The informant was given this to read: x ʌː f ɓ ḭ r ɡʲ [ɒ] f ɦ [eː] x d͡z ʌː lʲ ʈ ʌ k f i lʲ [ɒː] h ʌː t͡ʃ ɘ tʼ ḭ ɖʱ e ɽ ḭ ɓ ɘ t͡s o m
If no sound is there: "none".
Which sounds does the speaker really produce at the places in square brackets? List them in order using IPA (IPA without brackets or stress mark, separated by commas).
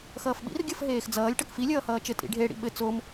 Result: ʌ, eː, ʌː